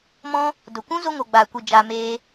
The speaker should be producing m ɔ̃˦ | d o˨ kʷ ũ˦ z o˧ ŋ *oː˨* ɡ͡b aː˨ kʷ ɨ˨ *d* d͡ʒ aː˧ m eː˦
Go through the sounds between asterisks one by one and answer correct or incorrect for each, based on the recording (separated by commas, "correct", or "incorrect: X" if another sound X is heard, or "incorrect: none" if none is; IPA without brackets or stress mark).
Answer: incorrect: o˨, incorrect: none